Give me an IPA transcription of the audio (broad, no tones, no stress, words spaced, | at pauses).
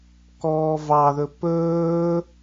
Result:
kɔːvɑðɵ pɵː